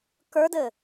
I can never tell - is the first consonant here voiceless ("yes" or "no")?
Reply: yes